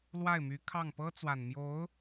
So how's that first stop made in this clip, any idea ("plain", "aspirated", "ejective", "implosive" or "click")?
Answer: aspirated